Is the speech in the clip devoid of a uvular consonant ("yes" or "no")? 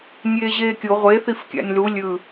no